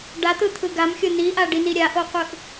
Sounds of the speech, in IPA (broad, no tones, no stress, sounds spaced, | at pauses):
ɖ a t̪ ɯ t̪ʰ ɯ ɡ a m xʲ o n i ʔ a ɖ i n i ɾʲ a ʔ o qʷ ɯ ʔ